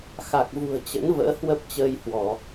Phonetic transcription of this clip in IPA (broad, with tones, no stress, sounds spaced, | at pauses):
x a˨˩ k̚ v ṳ˨˩ ə̯ t͡ɕ ə̰˧˥ n v ə̰ː˧˥ h w ə˦˥ p̚ t͡ɕ əː˧ j h w ɔ˧˩˨